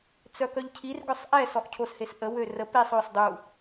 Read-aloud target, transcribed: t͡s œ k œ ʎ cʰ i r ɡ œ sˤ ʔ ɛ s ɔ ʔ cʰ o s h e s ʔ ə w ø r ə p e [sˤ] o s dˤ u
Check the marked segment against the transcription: correct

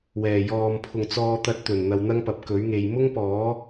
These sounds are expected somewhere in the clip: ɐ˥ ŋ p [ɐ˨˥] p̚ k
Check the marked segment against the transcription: correct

